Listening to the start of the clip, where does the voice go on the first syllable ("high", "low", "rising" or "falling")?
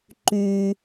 low